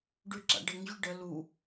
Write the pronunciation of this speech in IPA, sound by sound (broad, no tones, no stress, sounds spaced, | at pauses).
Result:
ɖ ʉ ǁ a̰ ɖ ə ŋ ʑ y ɖ ə l u